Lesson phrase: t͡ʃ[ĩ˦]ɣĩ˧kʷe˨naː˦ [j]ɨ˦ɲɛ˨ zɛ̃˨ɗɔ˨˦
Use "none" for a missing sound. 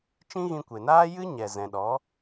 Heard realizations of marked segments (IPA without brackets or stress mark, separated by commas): ĩ˦, j